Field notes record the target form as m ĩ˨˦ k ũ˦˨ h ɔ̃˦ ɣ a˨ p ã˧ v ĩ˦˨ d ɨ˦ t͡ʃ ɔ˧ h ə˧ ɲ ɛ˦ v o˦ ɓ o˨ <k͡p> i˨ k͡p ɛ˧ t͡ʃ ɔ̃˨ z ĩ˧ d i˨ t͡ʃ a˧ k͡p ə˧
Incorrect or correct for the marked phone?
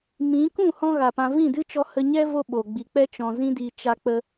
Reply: incorrect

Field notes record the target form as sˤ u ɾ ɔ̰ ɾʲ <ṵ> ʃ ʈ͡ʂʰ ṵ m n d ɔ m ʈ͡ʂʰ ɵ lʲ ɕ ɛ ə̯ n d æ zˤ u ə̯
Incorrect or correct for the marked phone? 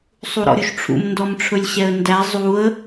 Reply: incorrect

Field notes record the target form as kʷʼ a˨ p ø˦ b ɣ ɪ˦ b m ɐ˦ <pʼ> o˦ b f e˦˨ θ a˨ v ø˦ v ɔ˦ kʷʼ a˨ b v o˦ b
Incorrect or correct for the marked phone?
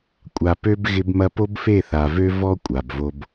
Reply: incorrect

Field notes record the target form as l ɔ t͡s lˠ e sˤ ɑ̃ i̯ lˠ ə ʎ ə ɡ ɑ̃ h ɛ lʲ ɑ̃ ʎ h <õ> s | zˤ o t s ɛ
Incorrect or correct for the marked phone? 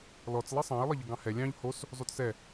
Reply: incorrect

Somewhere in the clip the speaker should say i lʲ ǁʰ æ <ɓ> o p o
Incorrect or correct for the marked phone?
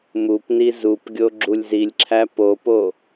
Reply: incorrect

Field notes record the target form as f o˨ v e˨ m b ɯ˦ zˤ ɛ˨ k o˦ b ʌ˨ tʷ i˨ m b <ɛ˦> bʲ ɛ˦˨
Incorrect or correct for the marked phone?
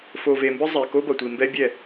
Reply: correct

